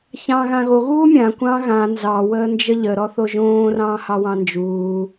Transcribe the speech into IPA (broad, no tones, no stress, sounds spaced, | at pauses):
ç ɑ̃ː ɣ ã ɣ o ɣ uː mʲ ã kʷ ɑ̃ ɣ ã n z ɑ w əː n d͡ʒ ə ʎ ə ɾ ɔ θ o ʒ õː r ɑ̃ː h ɑ w ɑ̃ n d͡ʒ uː